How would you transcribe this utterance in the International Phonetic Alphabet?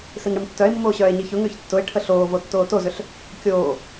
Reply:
siŋɽɪmtːœe̯mːoː ɕœːe̯ɲiçʊŋʏːç tːʊe̯ʈʰə ɬoːvo tːoːtozʏɬ | kʲoː

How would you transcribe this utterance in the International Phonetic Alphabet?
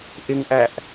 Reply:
ʔɪŋʔæʔ

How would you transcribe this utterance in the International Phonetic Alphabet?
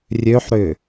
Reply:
rʲøħɾʏ

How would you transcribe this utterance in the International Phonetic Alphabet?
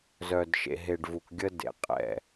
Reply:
zœ˨d ʃḛ˨ɦe˨ɖvu˨k ɡʲə˦ dḛ˨ qʼɛ̰˨

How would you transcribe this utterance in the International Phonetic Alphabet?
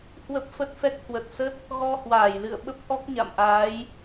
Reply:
hwə˦˥p̚fə˦˥t̚fɛ˦˥k̚ hwə˨˩t̚sə˦˥t̚ | ɣɔ˧hwaː˧˩jlɨ̰˧˨ə̯ ɓə˦˥p̚ʔɔ˦˥k̚ɲa̰˧˨mʔaː˨˦j

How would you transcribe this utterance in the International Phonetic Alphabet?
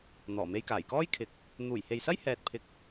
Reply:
n̪ɔː˨˩me˧j kaː˨˩jkɔː˥jkʰɪ˨˥k̚ | n̪uː˨˩jhe˨jsɐ˥jhɛː˨t̚ pʰɪ˧k̚

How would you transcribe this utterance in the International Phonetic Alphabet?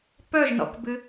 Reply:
pœʒnɔ̰kbɨ

